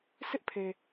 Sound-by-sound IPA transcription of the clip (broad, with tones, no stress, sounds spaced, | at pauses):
sʰ ɪ˦ ʔ pʰ e˨